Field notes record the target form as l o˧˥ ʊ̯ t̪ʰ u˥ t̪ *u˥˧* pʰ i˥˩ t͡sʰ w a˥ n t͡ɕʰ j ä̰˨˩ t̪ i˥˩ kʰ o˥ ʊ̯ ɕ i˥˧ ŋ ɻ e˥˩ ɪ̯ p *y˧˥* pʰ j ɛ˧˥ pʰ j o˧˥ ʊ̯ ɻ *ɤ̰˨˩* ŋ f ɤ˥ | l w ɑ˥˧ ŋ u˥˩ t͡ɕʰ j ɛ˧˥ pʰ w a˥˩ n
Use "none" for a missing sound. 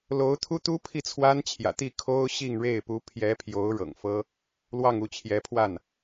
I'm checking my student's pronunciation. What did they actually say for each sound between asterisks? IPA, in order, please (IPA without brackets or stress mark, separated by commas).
u˥, u˧˥, ɤ̰˨˩